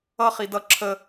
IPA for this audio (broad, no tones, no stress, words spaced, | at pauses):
ʌχi dʌ ǁʰə